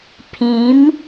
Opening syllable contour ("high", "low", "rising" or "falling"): rising